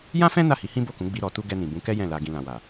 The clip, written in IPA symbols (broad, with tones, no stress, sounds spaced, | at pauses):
j ã˦ f ɛ̃˦ n a˦˨ h i˨˦ h ĩ˦ b o˦˨ k ũ˨˦ ɡ͡b i˧ ɾ ɔ˨ t u˧ ɡ ɛ˧ n ĩ˨ b ũ˨˦ k ɛ˦ j ɛ̃˦˨ l a˧ ɡ ĩ˧ l ã˨ w a˨